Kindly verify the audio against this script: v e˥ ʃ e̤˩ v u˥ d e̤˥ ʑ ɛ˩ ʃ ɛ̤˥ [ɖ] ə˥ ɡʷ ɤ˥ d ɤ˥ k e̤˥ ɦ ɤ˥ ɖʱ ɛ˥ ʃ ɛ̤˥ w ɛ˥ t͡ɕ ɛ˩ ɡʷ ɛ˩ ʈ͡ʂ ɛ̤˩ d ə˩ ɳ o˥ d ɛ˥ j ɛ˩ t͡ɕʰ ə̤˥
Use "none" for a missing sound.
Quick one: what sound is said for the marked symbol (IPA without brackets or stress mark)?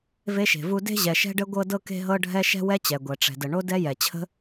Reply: ɖ